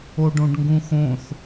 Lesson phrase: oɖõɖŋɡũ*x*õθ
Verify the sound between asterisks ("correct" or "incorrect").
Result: correct